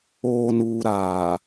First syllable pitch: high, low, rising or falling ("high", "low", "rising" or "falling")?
low